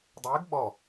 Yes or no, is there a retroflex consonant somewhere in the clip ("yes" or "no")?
no